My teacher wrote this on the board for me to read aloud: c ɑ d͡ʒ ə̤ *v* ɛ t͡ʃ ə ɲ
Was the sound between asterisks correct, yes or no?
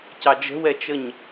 no